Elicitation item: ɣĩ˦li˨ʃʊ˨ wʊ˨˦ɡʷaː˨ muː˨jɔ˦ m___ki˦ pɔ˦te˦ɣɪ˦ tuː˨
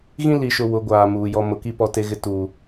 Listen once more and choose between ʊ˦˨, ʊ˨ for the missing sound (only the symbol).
ʊ˨